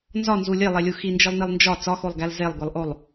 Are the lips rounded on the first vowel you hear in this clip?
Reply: yes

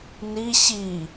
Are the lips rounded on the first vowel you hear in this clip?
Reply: no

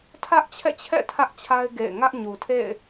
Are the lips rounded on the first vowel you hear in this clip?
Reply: no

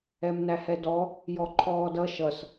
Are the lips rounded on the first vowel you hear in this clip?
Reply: no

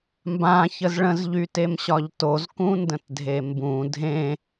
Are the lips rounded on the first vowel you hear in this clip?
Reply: no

